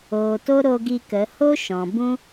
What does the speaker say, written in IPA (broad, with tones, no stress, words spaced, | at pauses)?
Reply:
oː˨to˦ɾo˧ ɡi˧kə˨˦ ho˦ ʃɔ̃˨ bũ˦